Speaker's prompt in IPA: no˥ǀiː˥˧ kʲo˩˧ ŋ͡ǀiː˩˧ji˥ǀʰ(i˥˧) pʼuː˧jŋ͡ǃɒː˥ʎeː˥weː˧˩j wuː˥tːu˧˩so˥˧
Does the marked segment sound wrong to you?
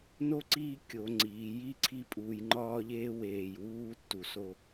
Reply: no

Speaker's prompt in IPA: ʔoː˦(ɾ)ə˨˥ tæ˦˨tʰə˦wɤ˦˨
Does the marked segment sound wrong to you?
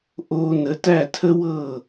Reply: yes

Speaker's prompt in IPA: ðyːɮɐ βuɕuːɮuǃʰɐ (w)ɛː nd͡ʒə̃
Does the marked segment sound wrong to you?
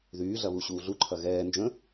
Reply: yes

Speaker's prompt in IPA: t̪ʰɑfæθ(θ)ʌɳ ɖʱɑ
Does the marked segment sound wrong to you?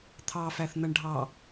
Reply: yes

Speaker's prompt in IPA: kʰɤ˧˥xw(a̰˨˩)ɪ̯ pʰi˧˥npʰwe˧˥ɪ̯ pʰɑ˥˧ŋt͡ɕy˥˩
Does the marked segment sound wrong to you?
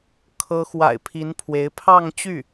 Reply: no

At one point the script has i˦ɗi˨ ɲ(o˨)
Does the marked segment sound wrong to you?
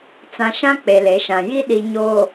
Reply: no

